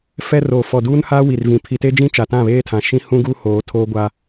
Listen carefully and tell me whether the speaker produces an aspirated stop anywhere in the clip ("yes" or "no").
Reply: yes